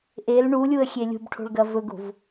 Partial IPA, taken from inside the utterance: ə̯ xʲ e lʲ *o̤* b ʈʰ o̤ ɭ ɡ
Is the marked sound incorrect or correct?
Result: incorrect: ṳ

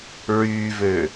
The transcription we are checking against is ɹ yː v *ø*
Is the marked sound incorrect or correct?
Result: correct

